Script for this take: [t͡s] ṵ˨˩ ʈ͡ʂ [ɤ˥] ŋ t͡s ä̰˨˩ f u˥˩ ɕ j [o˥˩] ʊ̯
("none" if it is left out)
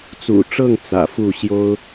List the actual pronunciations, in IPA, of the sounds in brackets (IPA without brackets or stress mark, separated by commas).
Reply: t͡s, ɤ˥˩, o˥